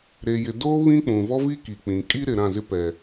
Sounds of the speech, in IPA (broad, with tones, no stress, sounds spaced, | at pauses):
ɾ e˨ j ɪ˨ d oː˦ β ĩ˦ k͡p ũ˨ v ɔ˦ v i˦ k iː˨ k͡p ĩ˨ kʼ i˦ ɾ ɪ˨ ɾ ã˦˨ z ɪ˦ p ɛ˨